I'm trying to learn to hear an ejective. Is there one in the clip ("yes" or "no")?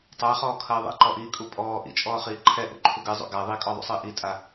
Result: yes